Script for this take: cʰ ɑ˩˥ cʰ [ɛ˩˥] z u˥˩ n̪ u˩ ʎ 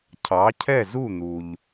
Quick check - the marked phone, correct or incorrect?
incorrect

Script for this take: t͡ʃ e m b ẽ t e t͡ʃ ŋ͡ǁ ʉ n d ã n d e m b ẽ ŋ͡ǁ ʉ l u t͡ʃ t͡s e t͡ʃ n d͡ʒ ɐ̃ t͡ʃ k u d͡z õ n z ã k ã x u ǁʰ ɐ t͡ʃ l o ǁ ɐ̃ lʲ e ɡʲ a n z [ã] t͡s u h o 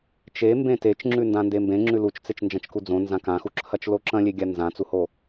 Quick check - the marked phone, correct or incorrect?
correct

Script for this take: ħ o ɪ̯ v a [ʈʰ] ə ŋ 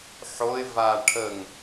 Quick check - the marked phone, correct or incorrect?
correct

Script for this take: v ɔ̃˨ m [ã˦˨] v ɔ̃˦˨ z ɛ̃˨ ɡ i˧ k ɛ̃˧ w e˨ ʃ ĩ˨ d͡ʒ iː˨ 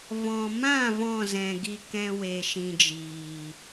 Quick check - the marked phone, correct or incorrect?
correct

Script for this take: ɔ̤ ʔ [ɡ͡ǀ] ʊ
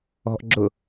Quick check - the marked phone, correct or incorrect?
incorrect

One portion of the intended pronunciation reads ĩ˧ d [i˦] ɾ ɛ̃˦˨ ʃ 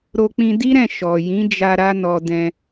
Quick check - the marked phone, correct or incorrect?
correct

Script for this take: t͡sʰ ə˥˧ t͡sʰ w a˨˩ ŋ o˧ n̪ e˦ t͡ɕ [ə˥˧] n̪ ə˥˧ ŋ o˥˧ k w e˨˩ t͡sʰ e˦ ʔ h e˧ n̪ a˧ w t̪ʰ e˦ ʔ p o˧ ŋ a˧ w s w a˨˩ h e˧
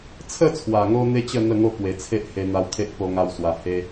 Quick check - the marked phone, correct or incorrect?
correct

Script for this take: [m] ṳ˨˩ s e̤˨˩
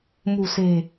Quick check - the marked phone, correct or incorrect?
correct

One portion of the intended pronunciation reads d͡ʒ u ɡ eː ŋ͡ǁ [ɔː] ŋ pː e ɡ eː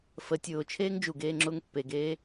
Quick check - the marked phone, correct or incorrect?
incorrect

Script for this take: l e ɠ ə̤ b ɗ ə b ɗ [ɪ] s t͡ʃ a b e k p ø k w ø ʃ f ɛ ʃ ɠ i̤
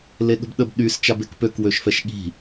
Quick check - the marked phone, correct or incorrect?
incorrect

